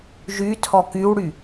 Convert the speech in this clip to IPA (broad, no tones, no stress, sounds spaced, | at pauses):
ʒ y tʰ ɔ k y w ɽ y